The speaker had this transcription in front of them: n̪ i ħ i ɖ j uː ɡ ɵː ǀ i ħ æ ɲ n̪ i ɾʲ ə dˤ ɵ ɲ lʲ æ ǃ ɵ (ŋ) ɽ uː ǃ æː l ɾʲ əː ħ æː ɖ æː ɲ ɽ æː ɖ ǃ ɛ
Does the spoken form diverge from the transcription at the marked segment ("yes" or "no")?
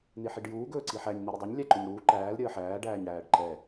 yes